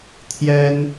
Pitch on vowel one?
high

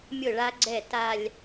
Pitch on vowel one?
falling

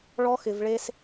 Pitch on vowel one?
high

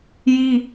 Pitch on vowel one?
high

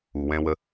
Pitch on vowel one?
low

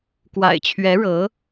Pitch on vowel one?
low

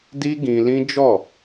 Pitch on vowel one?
high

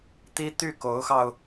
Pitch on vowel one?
high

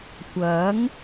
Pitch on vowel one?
rising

